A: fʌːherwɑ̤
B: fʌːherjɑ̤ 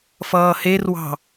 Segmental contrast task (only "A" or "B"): A